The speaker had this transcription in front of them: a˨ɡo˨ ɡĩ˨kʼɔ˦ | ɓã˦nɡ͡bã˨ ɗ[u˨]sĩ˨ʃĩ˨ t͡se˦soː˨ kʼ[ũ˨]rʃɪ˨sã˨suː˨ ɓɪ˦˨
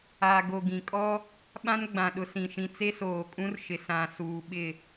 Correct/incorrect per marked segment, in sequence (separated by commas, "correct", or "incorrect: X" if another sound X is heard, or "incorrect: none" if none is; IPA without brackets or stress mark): incorrect: ʊ˨, incorrect: ũ˦